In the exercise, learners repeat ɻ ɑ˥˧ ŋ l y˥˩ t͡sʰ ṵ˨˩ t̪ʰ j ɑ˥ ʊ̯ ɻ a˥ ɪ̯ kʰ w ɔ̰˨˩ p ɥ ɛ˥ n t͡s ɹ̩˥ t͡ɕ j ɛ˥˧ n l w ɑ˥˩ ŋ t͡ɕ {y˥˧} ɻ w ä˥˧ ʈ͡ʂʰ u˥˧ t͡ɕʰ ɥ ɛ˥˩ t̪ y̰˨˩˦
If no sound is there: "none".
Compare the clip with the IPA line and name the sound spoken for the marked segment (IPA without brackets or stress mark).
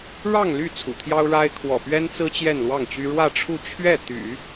y˥